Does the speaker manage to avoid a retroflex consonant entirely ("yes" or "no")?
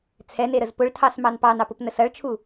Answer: no